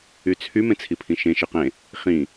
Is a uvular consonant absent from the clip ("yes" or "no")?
no